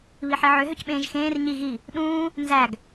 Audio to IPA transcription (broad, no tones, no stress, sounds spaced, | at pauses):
β i ħ i ʕ ø ɦ ø c ɓ ẽː ʒ x ẽː r ɲ i ɣ i | ɗ ũː | n z æ ɡ